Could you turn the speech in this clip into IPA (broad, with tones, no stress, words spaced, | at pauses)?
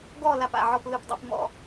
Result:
ɡɔ˦˨ la˦˨pa̰˩˧˩ʕɔ˦˨p lɯ˦˨pdˤa̰˦p mɔ̰˦˨